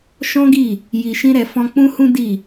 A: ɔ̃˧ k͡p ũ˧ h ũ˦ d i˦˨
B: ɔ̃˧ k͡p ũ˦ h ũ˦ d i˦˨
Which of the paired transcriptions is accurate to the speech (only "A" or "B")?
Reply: B